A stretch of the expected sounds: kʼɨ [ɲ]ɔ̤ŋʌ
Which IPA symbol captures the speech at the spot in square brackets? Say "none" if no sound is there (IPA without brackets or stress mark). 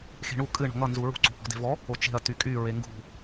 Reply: ɳ